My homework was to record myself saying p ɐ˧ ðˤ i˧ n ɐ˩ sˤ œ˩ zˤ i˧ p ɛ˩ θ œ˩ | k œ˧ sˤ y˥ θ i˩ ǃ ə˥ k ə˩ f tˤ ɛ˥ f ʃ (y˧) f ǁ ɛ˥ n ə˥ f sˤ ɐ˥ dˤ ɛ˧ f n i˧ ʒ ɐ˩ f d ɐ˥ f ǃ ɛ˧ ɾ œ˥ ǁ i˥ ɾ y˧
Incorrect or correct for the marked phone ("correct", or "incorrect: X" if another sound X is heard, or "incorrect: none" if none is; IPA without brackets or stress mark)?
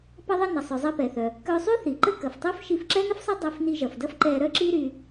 incorrect: i˧